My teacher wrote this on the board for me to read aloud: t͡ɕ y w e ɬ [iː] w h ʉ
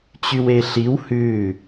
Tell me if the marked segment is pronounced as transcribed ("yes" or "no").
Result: no